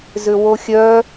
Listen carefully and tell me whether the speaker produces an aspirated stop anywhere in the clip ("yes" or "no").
no